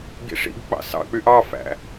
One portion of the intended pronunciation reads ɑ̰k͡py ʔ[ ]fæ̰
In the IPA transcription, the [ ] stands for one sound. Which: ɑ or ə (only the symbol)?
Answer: ɑ